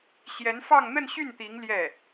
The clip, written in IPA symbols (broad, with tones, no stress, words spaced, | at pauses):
ɕjɛ˧˥nfɑ˥˧ŋ n̪ə˥˧nɕy˥˩n t̪i˧˥ŋ ljɛ˥˩